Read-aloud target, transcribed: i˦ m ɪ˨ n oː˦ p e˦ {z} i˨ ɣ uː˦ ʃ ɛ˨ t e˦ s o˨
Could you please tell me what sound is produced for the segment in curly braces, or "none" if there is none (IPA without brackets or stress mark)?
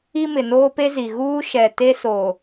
z